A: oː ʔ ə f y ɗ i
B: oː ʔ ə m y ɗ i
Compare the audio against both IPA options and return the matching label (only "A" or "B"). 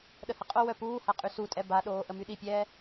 B